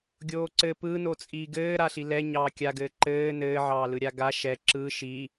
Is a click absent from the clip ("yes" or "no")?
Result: no